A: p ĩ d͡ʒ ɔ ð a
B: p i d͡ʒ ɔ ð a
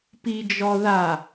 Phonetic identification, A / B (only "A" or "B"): B